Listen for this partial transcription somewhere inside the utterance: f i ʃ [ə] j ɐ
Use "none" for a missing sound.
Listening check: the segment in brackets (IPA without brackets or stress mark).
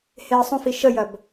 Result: ə